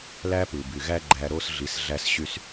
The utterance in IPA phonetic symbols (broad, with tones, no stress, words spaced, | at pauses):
læ˦pɯ˨ by˨ɣæ˦ɡ͡ǃæ˧ ɾo˦s ɮi˧sɮæ˦sɕy˦s